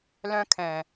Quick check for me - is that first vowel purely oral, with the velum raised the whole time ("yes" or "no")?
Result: no